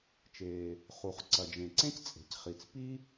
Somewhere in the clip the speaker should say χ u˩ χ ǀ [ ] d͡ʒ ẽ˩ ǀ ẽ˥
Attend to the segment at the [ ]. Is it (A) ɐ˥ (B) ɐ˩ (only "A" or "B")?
B